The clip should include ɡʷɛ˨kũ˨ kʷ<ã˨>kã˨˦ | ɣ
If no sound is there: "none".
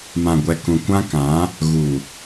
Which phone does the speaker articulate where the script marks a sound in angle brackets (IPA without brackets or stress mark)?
ã˦